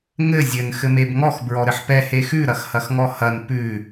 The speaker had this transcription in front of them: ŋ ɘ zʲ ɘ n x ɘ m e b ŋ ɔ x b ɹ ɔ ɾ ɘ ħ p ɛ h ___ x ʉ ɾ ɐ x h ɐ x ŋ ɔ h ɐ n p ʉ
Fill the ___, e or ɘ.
e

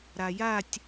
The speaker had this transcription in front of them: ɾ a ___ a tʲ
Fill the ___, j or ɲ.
j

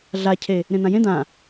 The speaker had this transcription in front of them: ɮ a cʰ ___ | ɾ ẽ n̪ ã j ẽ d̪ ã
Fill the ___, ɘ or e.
e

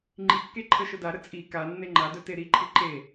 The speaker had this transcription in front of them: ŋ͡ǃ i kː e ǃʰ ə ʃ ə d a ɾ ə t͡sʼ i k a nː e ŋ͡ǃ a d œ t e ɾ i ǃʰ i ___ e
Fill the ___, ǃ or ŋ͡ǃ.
ǃ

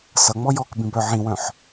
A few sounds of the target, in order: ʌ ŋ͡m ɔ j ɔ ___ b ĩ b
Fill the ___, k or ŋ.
k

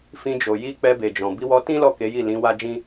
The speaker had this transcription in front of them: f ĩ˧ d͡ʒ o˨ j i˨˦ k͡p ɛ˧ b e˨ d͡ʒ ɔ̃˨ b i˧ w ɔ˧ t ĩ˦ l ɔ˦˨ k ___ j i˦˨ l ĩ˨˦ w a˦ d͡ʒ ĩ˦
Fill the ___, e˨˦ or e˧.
e˨˦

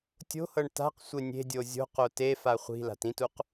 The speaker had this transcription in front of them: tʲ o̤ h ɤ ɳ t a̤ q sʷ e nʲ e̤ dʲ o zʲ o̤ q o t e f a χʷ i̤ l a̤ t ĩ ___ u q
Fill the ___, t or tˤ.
t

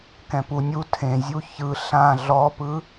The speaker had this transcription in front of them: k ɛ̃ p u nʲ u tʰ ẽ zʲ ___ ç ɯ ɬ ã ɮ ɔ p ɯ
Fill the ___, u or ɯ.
u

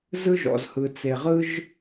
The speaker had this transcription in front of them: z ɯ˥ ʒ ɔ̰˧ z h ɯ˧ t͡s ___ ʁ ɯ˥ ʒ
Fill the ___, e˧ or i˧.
e˧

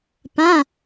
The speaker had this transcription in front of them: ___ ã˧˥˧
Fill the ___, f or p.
p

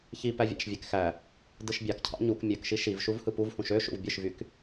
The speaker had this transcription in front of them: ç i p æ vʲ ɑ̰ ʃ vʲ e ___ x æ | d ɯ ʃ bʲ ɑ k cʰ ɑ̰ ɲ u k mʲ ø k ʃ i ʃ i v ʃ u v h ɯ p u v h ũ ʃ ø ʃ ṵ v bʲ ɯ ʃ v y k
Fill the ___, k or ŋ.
k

